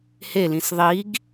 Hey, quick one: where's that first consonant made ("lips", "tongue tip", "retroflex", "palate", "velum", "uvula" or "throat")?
throat